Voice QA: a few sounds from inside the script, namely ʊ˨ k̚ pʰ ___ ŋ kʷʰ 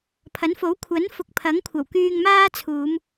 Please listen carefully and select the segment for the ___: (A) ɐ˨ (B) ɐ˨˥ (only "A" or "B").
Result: B